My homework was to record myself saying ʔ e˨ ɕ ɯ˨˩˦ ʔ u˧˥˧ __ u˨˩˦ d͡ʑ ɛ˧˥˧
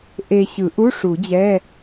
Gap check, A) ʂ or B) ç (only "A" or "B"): A